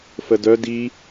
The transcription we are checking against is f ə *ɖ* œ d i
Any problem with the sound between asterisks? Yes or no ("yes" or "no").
yes